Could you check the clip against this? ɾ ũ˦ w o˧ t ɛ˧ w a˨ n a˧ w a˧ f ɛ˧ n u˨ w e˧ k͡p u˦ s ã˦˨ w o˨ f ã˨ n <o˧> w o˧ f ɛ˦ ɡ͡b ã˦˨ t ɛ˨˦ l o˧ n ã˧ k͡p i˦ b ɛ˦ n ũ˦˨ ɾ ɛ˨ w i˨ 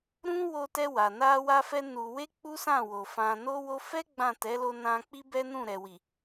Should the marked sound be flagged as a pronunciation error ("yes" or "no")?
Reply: no